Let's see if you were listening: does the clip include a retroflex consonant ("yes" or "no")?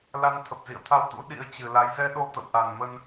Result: no